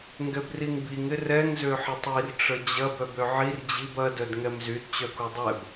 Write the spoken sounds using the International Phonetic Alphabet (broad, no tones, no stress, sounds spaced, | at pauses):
ŋ ɡ ɛ b r i ŋ b i ŋ ɪ r ɛ ŋ z ø ħ ɪ tˤ i r ʈ͡ʂ ə d͡ʑ ɐ b œ b ø ʕ i r d͡ʑ i b ɐ d œ d ŋ ɛ m z y d t͡ɕ œ k u dˤ ɛ b